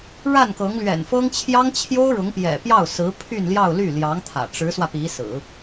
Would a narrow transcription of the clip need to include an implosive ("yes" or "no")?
no